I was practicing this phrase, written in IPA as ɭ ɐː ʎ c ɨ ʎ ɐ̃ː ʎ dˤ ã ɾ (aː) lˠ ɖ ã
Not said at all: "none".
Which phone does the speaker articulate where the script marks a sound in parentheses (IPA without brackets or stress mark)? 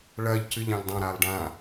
aː